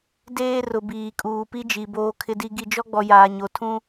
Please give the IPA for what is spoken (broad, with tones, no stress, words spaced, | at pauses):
deː˦ rʊ˨biː˨ kʼuː˨pi˦d͡ʒi˨ boː˨kʰɪ˨di˨ ɡi˨d͡ʒɔ˦ɡ͡bɔ˨ jaː˨ɲo˨tʰũ˦